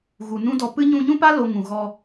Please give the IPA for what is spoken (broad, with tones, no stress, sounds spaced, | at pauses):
ɣ u˨ n ũ˦ d ɔ˧ p ɨ˦ ɲ ũ˧ ɲ ũ˦ p a˦ l o˧ ŋ ũ˨ ɣ ɔ˧